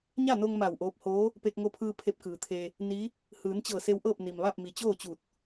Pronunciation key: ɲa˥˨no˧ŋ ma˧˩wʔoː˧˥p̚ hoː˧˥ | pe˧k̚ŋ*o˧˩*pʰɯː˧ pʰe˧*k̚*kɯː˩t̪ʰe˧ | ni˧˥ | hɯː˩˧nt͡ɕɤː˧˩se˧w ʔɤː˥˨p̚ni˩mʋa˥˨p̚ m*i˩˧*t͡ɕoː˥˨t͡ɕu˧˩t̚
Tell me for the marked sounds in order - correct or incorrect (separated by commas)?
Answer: incorrect, incorrect, incorrect